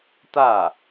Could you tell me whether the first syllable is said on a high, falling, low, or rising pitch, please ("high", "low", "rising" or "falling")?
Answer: falling